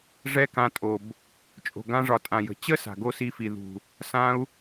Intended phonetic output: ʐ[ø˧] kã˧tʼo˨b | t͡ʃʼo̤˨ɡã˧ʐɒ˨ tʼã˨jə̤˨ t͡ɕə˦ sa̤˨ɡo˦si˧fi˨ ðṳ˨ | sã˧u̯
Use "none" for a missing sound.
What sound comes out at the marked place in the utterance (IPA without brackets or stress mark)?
ɛ˧